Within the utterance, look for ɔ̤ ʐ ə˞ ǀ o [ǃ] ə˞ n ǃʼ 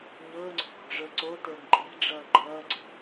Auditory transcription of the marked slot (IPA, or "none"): t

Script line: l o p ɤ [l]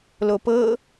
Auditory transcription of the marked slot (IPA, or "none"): none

